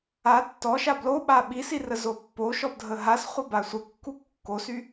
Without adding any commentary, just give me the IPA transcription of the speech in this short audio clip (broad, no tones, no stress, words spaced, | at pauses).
a tːɔʃa bloɓa ɓisirəzo pːoʃɔpdʱə ɦasχʷəba sʷəkːu kːosy